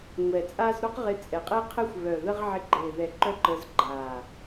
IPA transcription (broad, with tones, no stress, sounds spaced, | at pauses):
ŋʷ ɛː˨ t͡sʼ aː˦ z ɾ o˦ q ʁ ɪ˧ t͡sʼ ɛ˨ qʼ e˦ qʰ ɘ˦ xʷ β œ˨ ð ə˦ ʁ ʕ ɪ˧ ɡ͡ǃ e˨ ð ɛ˨ ǃ œ˦ ǃ əː˧ z ɡ͡ǃ aː˨